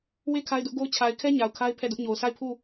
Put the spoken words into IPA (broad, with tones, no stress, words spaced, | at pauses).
we˦ kʰa˦ɪ̯dʊ˦ʔɡo˦ʊ̯ t͡ɕʰa˨ɪ̯kʰɛ˦ ɲa˨ʊ̯kʰa˦ɪ̯ pʰɛ˦˨dʊ˦ʔɲo˨ʊ̯ sa˦˨ɪ̯pʰu˦˨